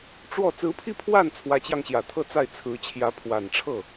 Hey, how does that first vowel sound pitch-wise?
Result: falling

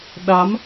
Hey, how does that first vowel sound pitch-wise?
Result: rising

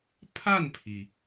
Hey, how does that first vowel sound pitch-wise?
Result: falling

